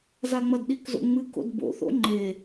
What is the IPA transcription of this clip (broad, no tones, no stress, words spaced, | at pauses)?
zaŋ͡mɐdɗikzo̰ ŋ͡mɨko̰d bo̰θo̰ ŋ͡ǃe